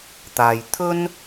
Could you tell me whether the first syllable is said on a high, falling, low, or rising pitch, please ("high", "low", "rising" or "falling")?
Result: low